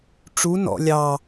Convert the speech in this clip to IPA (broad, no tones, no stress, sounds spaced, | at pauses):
ʈ͡ʂ u n ɔ̰ lʲ ɑ